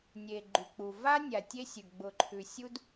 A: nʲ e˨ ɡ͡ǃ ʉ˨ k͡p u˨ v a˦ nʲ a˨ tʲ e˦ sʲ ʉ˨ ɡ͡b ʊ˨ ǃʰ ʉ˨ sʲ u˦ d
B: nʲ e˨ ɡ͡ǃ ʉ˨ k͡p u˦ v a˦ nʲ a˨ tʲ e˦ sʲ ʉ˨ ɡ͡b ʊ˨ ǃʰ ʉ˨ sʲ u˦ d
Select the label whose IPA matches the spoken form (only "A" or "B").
A